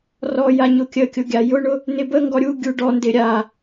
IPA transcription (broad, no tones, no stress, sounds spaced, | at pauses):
r ɔ j a ɲ ʊ kʲ ə kʲ ʊ ɡʲ a j ʊ ɳ ʊ | n ɪ b ə ŋ ɡ ɔ ɾʲ u ɡʲ u ɖ ɔ n d ɪ ɾʲ a